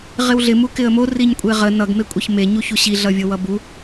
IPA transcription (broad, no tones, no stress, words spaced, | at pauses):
ʁɪwɮɪ mukɪə̯mo riɲkʷʼeʁə nʌɡ mekʷʼeçme ɲuçuɕi ɮʌvʲowʌbu